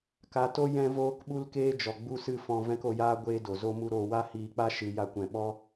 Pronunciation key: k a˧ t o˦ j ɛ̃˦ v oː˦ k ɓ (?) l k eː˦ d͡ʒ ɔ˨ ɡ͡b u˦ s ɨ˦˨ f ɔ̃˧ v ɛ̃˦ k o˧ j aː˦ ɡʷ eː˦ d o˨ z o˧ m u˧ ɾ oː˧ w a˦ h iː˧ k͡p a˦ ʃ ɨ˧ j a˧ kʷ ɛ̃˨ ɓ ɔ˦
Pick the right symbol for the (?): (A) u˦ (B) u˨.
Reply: A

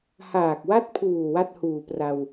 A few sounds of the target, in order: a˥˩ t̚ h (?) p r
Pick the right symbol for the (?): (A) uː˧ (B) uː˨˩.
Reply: B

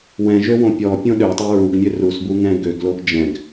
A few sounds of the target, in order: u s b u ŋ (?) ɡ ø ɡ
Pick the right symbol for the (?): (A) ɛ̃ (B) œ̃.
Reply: A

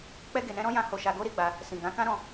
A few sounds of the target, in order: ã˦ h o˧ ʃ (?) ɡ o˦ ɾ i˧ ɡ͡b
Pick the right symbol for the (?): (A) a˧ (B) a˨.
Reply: A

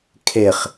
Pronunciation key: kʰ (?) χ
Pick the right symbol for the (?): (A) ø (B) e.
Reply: B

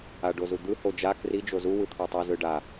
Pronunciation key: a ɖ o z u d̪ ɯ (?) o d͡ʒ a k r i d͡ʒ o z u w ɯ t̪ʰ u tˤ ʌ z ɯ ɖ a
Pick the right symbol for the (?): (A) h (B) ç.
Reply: A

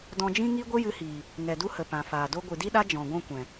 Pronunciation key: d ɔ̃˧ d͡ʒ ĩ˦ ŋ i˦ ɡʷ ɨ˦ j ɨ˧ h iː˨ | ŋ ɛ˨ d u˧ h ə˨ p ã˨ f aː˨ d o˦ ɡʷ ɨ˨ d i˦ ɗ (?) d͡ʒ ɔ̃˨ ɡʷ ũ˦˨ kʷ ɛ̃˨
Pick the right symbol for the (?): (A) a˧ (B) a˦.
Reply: B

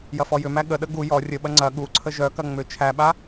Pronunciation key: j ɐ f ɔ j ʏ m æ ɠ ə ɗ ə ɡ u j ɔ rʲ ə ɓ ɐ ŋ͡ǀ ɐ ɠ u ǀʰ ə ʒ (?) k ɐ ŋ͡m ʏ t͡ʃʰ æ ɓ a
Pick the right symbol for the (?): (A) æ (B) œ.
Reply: B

